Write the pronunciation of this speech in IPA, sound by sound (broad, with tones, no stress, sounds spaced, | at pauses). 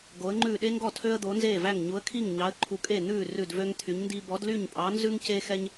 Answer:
ɡ o˨˥ ə̯ ŋ͡ǃ ʉː˥˩ ɗ e˥ ŋ ɡ ɔ˥˩ tʰ ø˥ ə̯ d̪ o˨˥ n z eː˥˩ v æ˥˩ ŋ ɲ u˨˥ ə̯ kʰ i˥˩ ŋ ɲ ɑ˨˥ ə̯ ǃʰ u˨˥ kʼ e˥˩ n̪ ʉː˥˩ r ʉ˥˩ d v ø˥ ŋ t̪ʰ y˨˥ ɲ n d i˥ b ɔ˨˥ d l y˥˩ ɲ pʼ ɑ˨˥ n z ʉ˥ ŋ c e˥ x ɛ˥ ɲ